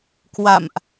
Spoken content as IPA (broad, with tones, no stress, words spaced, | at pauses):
kwa̰˧˨mʔ